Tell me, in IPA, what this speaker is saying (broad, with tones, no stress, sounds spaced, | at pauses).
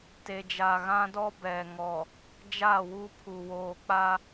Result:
t e˨ d͡ʒ a˨ ɣ ã˦ d ɔ˦ b ɛ˨ ŋ ɔ˨ | d͡ʒ a˦˨ w u˦ pʰ u˨ w oː˨ k͡p a˦